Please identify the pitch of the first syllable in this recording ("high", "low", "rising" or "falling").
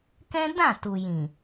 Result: high